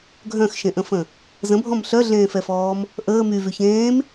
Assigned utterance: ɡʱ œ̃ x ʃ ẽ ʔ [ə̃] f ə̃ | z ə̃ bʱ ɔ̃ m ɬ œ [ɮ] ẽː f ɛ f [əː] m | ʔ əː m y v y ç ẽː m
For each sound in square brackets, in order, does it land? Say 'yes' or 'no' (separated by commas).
yes, yes, no